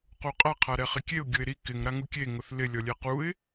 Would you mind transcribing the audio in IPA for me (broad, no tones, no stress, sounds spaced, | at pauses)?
q u qʼ a qʰ a ɾ ɛ χ ɪ kʲ e ʊ̯ ɡʲ ʊ ɪ̯ ɾ i k ɪ ŋ ɾ a ŋ u kʲ e ŋ ʊ θ l ɪ lʲ ɔ lʲ ɛ q u ɪ̯